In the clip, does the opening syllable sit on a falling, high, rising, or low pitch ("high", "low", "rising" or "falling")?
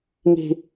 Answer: high